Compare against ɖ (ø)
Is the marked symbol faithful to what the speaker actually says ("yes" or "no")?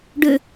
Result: yes